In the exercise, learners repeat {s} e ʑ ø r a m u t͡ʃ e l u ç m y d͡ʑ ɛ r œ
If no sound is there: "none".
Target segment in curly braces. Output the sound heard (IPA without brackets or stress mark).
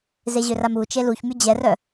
z